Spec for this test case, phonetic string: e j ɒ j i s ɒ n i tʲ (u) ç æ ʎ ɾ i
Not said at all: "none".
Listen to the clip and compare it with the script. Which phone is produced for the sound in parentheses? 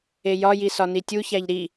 u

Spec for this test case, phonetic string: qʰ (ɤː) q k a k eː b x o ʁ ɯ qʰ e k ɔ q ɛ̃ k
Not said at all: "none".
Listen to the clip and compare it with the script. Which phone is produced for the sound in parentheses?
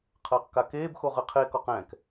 ɤː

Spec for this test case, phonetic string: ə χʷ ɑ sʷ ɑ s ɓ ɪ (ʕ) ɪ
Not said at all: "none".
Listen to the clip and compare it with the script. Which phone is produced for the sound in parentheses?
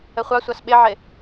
ʕ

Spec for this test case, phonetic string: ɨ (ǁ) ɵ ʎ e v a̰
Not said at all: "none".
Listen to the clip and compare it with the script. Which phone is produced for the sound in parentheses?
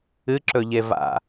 ǁ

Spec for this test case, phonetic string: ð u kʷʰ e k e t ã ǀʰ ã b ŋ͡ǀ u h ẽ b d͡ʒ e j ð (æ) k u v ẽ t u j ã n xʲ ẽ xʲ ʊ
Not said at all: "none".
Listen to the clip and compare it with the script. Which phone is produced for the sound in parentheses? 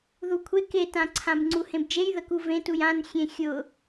ə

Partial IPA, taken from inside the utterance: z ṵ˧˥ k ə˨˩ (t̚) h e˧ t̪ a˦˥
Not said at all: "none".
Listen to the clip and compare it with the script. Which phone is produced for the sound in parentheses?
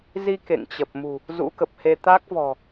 p̚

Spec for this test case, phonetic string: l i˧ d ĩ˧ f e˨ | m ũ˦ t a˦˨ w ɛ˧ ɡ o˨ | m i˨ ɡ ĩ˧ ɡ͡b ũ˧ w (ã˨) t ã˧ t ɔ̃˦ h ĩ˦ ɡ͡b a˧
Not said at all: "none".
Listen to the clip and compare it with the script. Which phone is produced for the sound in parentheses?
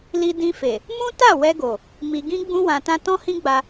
ã˨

